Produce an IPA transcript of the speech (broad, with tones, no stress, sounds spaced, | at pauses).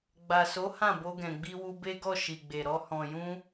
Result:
ɡ͡b a˨ s o˨˦ h ã˦˨ b o˧ ɡ ɛ̃˨ ɡ͡b i˧ w u˧ b e˦ ɡ ɔ˦˨ ʃ i˨ ɡ͡b e˨ ɾ ɔ˧ h ɔ̃˨ j ũ˧